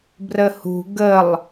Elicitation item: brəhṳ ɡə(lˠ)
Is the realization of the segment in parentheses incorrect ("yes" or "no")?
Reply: no